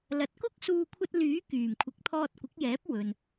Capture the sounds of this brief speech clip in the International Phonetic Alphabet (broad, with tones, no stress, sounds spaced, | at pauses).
l ɐ˨˥ t̚ k ʊ˥ k̚ s uː˧ kʷʰ ɐ˧ t̚ l yː˨˥ k yː˨˩ m kʷʰ ɪ˨˥ k̚ t̪ʰ ɔː˧ t̚ kʷ ɪ˨˥ k̚ j ɛː˨˥ p̚ w ɵ˨ n